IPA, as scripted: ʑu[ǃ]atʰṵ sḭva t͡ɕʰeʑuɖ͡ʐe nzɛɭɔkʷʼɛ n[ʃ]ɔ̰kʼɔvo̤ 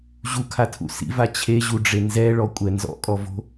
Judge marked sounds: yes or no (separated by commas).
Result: no, no